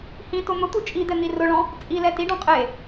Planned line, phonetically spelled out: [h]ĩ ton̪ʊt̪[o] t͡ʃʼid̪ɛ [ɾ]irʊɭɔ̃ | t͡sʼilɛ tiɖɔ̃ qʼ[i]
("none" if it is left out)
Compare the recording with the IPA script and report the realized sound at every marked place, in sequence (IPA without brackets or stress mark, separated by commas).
h, u, n̪, e